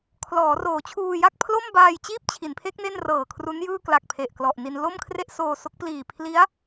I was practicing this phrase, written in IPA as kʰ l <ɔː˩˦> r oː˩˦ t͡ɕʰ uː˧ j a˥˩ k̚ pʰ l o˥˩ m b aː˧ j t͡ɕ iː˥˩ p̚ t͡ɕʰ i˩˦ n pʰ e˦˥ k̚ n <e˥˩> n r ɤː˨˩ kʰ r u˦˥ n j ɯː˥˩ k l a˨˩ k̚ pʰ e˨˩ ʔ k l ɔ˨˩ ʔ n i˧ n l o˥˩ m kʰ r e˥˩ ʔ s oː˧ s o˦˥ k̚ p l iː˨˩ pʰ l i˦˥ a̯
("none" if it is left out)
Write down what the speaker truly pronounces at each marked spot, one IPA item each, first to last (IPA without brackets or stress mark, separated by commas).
ɔː˩˦, e˥˩